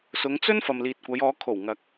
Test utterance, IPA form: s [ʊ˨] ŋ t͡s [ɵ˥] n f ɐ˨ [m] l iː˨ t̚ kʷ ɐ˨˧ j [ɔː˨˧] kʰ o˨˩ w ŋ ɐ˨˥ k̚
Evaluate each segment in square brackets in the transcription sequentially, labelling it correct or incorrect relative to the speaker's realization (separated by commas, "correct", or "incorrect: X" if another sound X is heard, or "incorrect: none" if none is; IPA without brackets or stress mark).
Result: incorrect: ʊ˨˧, correct, correct, correct